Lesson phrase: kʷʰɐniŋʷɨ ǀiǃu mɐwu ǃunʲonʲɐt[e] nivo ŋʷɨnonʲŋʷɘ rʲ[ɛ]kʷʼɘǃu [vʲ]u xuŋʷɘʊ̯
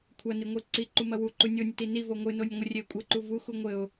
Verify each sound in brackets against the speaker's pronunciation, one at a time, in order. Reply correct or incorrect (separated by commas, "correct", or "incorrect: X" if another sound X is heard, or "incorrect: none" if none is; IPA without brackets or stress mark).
incorrect: i, incorrect: e, incorrect: v